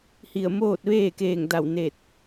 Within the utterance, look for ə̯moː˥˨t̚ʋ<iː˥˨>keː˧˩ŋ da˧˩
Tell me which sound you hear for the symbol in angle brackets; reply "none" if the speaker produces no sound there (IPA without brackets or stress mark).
eː˥˨